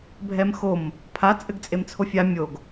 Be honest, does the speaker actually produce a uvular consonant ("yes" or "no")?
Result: no